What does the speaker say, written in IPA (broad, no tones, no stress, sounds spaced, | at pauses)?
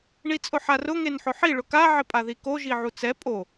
ɳ i t͡sʼ ʊ ħ a r ʊ ŋ e n ħ ʊ ħ i ɭ ʊ k a ʕ ɪ pʼ a ð i k o ʒ i ʕ u t͡s ɛ pʼ o